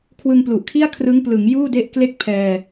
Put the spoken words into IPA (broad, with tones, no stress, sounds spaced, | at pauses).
kʰ w ɯ˧ ŋ p l u˨˩ ʔ kʰ i˥˩ a̯ kʰ r ɯ˦˥ ŋ p l ɯ˩˦ ŋ j uː˥˩ d e˥˩ ʔ k l e˥˩ k̚ pʰ ɛː˧